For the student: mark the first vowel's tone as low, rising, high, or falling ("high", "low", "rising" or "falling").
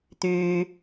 low